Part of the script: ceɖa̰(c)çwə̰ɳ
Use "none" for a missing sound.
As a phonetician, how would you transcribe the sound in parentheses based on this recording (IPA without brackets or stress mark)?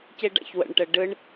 none